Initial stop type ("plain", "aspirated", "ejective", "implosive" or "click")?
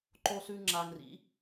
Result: click